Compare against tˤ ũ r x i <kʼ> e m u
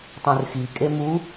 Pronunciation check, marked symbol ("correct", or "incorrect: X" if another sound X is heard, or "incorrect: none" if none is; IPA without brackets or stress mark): correct